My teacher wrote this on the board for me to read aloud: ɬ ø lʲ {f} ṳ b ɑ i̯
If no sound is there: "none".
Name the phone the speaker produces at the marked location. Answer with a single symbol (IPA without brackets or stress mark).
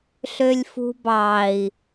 f